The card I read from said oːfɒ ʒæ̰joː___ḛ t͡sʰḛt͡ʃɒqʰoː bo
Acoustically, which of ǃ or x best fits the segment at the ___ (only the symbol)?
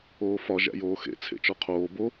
x